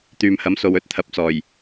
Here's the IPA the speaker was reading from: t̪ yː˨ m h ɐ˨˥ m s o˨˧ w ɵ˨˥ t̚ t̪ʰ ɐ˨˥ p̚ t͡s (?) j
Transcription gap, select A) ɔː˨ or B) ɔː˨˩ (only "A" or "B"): B